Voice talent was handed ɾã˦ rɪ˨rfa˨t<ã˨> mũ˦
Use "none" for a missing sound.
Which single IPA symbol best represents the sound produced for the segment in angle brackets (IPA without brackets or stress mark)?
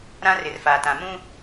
ã˨